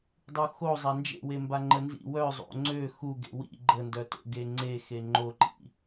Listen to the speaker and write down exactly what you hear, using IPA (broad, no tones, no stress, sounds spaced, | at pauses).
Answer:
dˤ u x o zˤ a n d͡ʒ ḛ w e m b a ŋ͡ǃ ə n z ḭ w œ zˤ o̰ ŋ͡ǀ ø x u ɡ ḛ w ḭ ɡ͡ǃ ə n d œ t o̰ ɡ e ŋ͡ǀ e x e ŋ͡ǃ o ǃ ḭ